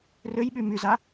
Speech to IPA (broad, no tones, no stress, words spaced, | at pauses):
røjɓy myza